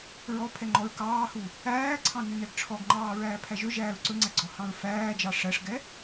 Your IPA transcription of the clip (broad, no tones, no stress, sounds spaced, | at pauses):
ɹ ɔ pʰ ɛ ŋ͡ǃ ɔ ɹ k ɑː h u | æː ǀʰ ɑ̃ n ɵ n ɛ ɡ ʈ͡ʂʰ ɔ ɡ ŋ͡ǃ ɑː ɹ æː pʰ æ ʒ ɵ ʒ æː ɹ ǀ ɵ ŋ͡ǀ æ ɡ͡ǀ ɔ h ɑ̃ ɹ f æː d͡ʒ ɑ ʂ æ ʂ ɡ ɛ